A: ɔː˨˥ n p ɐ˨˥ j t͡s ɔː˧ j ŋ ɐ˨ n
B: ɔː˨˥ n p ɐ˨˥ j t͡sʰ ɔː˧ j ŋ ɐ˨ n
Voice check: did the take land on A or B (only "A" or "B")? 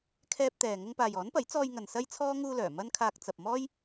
A